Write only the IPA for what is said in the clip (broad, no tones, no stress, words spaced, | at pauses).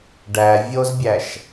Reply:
ɖæ vʲozbʲæʃ